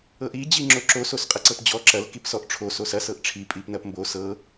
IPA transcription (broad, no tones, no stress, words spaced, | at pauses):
ɤʔi d͡ʑiŋ͡ǁoǁo sosqʼɐǀɤpd͡ʑɔ ǁɐl kipsɔʔ ʈ͡ʂʰo sosɐ sɤʔʈ͡ʂʰi pʼipnɐpmbo sɤ